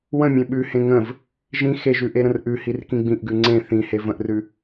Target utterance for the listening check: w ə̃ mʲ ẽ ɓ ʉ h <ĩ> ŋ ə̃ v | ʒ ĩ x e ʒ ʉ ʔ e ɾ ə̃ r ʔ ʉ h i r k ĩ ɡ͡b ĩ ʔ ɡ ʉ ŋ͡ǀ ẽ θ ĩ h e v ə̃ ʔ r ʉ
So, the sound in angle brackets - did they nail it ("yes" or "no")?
no